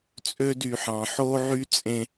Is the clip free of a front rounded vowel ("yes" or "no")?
no